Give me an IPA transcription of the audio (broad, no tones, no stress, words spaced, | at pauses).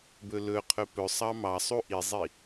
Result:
bɵlɵqʰɵ pɵsˤɑ mɑsˤu ʔizˤi